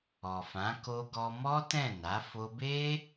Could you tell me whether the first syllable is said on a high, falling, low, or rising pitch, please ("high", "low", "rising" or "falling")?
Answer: low